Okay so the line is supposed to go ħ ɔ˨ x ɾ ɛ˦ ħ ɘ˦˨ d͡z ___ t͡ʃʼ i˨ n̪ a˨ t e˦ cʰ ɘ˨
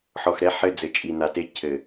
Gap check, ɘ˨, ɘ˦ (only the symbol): ɘ˨